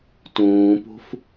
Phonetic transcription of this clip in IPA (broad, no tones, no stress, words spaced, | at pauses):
tũːpṳf